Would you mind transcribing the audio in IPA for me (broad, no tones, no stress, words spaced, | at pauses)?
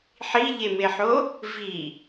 ħiʎemeħo | vi